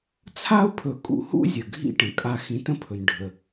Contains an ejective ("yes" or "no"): yes